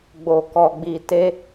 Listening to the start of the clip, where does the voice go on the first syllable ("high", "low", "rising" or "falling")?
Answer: low